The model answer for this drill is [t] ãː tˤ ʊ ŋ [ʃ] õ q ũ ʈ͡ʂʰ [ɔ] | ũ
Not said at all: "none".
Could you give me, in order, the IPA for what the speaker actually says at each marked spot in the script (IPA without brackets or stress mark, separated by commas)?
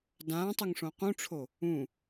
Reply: d, ʂ, o